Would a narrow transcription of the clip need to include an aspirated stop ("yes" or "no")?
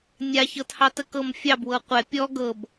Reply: no